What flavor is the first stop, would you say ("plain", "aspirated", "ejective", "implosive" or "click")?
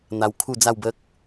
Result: aspirated